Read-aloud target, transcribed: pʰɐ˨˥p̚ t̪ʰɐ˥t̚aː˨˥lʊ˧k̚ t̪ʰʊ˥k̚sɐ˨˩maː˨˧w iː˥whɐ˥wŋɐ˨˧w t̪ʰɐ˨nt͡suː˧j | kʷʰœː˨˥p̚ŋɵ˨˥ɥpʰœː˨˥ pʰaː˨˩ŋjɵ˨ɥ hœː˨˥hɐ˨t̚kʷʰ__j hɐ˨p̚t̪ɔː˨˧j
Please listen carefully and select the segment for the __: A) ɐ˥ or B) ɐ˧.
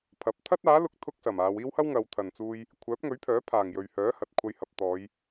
B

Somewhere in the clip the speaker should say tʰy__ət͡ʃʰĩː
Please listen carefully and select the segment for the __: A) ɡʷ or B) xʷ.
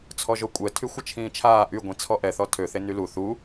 B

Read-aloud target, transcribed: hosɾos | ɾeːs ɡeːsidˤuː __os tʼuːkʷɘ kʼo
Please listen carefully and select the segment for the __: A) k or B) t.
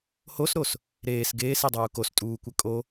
A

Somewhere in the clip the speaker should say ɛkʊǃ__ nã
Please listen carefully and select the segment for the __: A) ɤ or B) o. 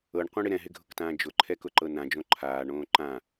A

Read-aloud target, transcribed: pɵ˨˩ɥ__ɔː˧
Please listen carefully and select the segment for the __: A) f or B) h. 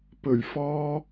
A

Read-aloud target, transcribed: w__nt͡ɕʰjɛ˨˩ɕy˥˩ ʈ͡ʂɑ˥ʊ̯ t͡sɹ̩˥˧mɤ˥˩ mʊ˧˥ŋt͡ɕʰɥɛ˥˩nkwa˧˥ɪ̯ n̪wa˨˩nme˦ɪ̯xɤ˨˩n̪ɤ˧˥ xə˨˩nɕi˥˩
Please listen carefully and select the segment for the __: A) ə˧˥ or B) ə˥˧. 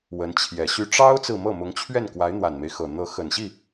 A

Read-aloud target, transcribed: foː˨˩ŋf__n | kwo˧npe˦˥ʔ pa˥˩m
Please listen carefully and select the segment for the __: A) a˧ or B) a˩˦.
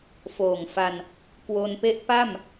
A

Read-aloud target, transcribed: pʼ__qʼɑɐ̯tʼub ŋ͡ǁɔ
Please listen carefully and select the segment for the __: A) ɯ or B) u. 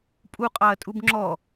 B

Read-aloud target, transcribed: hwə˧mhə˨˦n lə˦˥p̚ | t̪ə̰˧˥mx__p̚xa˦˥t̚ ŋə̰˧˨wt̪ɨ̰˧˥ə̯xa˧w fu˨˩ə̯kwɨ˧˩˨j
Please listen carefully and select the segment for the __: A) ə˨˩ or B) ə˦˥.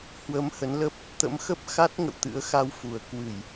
B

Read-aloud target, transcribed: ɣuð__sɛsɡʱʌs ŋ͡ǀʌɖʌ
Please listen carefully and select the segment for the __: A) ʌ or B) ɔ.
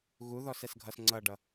B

